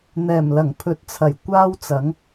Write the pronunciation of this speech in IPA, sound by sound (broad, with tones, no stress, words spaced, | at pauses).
n̪ɛː˨˩mlɐ˨˩ŋ pʰɵ˨t̚t͡sʰɐ˨˩j kʷaː˥wt͡sɐ˨˥ŋ